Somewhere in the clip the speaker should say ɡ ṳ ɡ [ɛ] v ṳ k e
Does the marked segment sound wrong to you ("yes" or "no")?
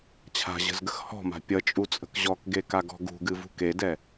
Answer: yes